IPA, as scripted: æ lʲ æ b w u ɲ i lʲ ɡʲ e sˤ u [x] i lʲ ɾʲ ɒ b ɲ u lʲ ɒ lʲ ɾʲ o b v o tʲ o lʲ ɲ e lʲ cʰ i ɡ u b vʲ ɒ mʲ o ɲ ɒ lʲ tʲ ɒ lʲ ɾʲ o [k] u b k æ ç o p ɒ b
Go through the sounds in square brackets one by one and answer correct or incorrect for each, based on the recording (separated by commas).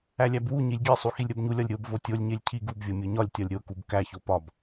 correct, correct